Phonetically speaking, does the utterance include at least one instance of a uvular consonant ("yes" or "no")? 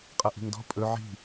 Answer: yes